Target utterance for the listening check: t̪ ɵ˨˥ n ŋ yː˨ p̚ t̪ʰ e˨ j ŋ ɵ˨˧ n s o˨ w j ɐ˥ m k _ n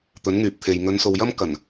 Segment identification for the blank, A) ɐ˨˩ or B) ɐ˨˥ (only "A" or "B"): A